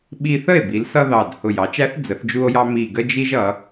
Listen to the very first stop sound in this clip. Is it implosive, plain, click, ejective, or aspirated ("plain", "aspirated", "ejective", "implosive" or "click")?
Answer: implosive